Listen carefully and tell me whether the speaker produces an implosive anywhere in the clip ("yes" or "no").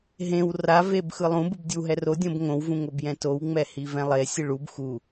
no